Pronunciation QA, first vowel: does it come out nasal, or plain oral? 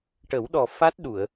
oral